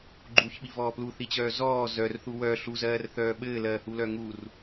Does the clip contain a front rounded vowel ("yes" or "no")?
yes